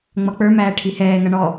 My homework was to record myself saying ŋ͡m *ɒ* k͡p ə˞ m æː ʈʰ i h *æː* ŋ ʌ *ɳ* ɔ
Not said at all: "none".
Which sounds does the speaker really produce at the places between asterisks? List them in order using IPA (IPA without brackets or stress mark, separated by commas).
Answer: ʌ, ɛː, ɳ